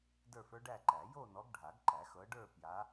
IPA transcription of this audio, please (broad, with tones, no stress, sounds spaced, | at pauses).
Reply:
d ə˞˥˧ f ə˞˥ ɖ æ˥˧ ǃ æ˨˩˦ j o˥˧ n ɔ˨˦ ɡ ɖʱ a˨˩˦ ɡ ǃ æ˨˩˦ x ɤ˨˦ ɖ ə˞˥˧ p j a˨˦